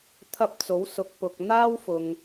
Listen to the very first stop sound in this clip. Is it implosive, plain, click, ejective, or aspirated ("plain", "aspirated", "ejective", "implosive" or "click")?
aspirated